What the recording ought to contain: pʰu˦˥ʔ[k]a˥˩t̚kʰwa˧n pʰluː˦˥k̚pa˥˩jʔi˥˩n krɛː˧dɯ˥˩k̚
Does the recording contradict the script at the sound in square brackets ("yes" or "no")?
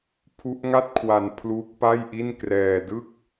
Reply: yes